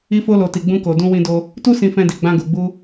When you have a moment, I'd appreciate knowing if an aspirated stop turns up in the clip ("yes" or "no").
no